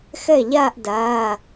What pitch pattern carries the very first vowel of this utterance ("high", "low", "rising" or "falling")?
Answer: falling